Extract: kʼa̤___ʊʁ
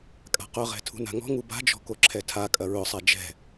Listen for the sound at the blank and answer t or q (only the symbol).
q